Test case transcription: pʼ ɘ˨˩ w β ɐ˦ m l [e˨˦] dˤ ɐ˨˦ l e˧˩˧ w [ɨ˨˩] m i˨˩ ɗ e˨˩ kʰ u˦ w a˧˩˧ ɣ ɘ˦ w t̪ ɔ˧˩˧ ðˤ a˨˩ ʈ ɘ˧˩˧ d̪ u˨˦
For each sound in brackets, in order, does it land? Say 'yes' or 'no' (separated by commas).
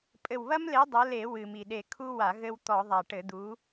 yes, yes